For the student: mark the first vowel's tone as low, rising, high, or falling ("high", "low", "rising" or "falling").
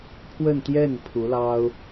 falling